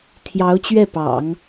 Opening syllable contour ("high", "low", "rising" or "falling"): rising